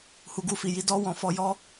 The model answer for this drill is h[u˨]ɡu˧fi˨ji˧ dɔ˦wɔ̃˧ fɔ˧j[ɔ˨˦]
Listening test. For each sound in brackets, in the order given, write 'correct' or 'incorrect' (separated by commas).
correct, incorrect